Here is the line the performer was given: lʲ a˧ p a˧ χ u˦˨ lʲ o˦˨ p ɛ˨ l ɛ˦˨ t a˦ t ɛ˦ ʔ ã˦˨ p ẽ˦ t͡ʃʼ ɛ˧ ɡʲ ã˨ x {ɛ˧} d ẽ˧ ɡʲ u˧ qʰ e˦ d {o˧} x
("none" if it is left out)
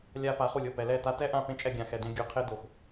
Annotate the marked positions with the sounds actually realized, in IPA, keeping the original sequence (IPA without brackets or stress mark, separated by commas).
ɛ˨, o˧